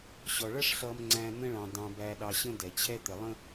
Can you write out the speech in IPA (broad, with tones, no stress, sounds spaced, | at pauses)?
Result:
ɕ ɔ˨ ɭ ʌ˦ ʂ ɬ ʌ˨ m ŋ͡ǀ æ̃˨ n̪ ə̃˦ ɭ ɑ̃˨ d ɑ̃˨ b æ˨ ɗ ɑ˨ ɕ ə̃˦ d ɛ˨ t͡ɕʰ ɛ˦ t̪ ɛ˨ lˠ ə̃˦